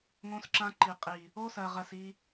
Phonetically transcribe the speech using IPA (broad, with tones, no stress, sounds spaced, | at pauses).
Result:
ŋ õ˦ s ǁ ã˦ ǃ i˨ qʼ i˨ | o˦ s ɜ˨ ʁ ɜ˨ s i˦